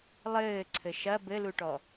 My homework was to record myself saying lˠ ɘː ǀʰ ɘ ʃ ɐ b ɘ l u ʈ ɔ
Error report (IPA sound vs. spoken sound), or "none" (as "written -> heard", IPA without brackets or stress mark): none